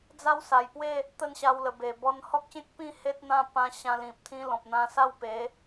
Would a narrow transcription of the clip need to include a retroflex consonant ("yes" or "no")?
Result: no